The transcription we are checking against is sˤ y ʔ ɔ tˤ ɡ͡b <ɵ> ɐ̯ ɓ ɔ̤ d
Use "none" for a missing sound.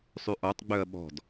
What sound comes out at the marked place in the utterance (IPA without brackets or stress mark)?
œ